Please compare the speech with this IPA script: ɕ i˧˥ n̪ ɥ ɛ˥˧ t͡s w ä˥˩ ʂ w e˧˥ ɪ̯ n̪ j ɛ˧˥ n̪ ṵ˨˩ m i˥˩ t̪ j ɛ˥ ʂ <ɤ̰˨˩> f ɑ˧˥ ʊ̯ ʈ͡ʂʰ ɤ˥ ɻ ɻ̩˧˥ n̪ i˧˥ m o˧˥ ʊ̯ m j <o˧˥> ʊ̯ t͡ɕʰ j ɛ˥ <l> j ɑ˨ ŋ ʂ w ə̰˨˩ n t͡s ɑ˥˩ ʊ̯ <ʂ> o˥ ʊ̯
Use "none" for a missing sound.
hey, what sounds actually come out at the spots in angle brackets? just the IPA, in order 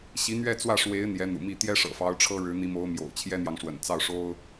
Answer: ɤ̰˨˩, o̰˨˩, n̪, ʂ

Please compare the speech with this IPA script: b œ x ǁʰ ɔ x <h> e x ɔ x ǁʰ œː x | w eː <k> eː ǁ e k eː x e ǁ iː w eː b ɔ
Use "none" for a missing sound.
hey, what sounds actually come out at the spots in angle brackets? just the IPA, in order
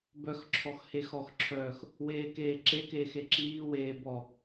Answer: h, k

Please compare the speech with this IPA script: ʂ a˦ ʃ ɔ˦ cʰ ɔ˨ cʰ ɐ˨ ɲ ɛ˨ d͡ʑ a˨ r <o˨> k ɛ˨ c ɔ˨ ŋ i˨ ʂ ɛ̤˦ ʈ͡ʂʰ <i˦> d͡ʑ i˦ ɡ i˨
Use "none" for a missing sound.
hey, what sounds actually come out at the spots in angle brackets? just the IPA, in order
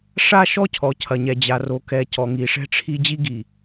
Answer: o˨, i˦

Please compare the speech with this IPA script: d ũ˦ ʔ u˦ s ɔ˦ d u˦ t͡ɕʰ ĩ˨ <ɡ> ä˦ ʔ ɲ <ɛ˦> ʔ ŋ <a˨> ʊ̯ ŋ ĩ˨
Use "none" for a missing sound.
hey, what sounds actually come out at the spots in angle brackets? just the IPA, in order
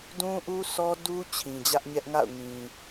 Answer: d͡ʑ, ɛ˦, a̰˦˨

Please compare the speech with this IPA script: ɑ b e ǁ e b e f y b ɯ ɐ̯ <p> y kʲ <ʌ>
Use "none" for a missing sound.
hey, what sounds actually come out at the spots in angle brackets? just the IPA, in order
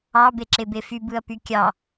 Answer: p, ɑ

